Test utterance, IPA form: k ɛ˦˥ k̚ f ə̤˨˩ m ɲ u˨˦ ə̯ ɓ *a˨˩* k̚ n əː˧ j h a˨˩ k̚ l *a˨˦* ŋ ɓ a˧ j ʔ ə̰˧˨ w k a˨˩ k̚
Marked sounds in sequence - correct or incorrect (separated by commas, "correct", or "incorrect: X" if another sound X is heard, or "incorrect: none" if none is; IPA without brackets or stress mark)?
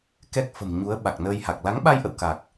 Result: correct, correct